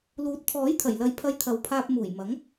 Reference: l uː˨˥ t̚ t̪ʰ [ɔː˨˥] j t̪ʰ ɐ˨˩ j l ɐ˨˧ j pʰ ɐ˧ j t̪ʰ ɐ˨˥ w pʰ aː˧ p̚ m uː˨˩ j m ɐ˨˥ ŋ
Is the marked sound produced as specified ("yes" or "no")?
yes